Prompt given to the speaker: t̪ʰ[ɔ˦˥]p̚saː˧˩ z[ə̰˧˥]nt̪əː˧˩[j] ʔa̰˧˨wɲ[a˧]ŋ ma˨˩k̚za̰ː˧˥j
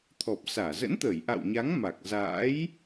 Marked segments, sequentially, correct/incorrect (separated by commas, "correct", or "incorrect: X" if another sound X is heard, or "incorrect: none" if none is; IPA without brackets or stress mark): incorrect: ɔ˨˩, correct, correct, incorrect: a˨˦